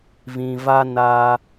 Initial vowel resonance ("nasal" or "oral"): nasal